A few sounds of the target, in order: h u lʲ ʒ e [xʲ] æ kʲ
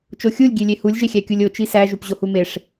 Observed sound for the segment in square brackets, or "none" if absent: xʲ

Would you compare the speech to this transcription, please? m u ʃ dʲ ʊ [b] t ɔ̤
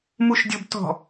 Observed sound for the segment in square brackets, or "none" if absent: b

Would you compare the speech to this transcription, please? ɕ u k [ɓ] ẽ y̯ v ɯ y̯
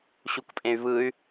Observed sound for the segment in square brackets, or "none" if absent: pʼ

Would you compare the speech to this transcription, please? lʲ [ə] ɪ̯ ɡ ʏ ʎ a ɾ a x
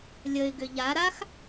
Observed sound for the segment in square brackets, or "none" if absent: ə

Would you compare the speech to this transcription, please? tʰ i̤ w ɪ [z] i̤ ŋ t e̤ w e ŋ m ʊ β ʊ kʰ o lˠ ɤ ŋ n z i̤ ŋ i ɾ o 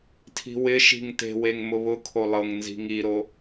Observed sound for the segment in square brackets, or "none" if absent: ʃ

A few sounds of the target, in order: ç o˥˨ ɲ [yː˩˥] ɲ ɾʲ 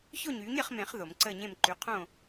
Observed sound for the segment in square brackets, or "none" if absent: yː˩˥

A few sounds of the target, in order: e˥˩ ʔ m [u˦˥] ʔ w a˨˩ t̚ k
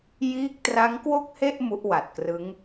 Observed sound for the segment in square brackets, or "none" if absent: u˦˥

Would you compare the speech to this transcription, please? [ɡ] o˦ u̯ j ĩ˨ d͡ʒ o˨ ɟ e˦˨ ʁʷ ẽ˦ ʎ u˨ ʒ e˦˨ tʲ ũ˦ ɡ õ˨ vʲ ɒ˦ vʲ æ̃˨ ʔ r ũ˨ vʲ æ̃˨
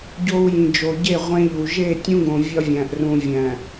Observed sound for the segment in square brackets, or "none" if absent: ɟ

